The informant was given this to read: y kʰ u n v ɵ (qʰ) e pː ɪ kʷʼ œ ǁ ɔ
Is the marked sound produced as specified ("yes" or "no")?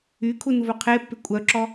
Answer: yes